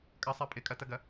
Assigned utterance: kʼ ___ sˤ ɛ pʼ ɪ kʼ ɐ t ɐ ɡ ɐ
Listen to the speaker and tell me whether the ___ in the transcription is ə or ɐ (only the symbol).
ɐ